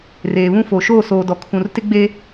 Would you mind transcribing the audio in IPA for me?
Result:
reː˨βũ˦fo˨ ʃoː˦˨soː˨dɔ˨ kʰũ˨r tɪ˦ɡ͡be˦

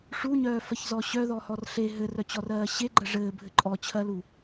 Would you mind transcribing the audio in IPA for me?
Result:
ʂuɲœːfɜçzɔ ɕœðɔhɔr ɬe ɦɘrœt͡ɕɔrɜː ɕeɡ͡ǃɜ ʐɘːbʱɘ ǃʼɔt͡ɕʰɜlu

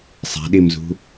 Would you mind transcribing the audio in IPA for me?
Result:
sˤæ̤ɗimzṳ

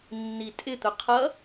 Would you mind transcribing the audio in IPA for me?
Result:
nːitʼɪ t̪ʊqʰʌ

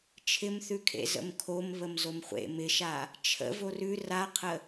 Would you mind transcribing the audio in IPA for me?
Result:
t͡ʃʰɪmθʉkʰḛ zə̰mkʰom βəmzomχʷḛ mɪʃa | t͡ʃʰə̰v orʉ raqʰə

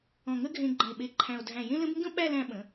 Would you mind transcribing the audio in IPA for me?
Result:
ɔ̃˧˩ŋə˥ɡʱẽ˧ ɡ͡ǃə̃˧˩e̯ɓe˧ǃʰæ̃˧o̯ dʱæ̃˧˩jẽ˥lə̃˥b ŋɡə̃˥ɓæ˥˧ læ̃˧ ɓə̃˩˧

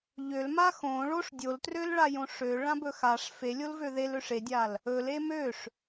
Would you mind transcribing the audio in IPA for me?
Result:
ʎølma xõ ɭoʂ dʲoltrølɭajõ ʂøɭãbɵ xaʂ felʲolvø ðeløʂ edʲal | ɵle møʂ

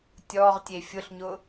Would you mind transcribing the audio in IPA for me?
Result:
tʲɔʁtʲe fʲʊɬɲʊ

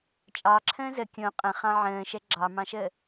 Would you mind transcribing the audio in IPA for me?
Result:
t͡ʃʼɑǁʰə̃ː zə kʲõ qʼə̃χɑ̃ ʕə̃ːʃɛ ɡ͡ǁɑmɑ̃ʃəː

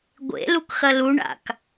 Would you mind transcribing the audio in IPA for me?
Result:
ɡʷḛlukxɐ luɳa̰k

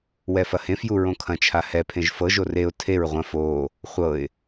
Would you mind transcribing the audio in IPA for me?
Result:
wɛfɐhẽfju ɹõkʰɐ̃t͡ʃʰa hɛpʰẽʒ fɤʒo reʊ̯ tʰeɹ ʁʷɐ̃ foː | χʷɤɪ̯

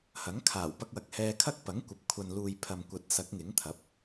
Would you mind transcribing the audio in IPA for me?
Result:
hɐ˨˥ŋkʰaː˨˩w pɐ˧k̚wɐ˨k̚hɛː˧kʰɐ˥k̚ pɐ˨˥ŋkʷɐ˨p̚ kʷʰɐ˨nluː˨jpʰɐ˨m kʷɐ˨˥t̚sɐ˨˥k̚ ŋɪ˨˥ŋt̪ʰɐ˨˥p̚

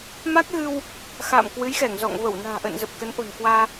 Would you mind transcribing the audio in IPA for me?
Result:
ma˦˥k̚ɣɨ˧w | xa̰ː˧˨mkwɨ˨˦jxɛ˧˩ŋzɔ̰˧˨ŋ və˧˩wna̤ː˨˩ʔə̰ː˧˨n zə˨˩p̚ kə˨˦nʔo̤˨˩nkwaː˧

